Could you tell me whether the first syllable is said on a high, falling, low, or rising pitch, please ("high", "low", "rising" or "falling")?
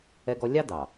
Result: high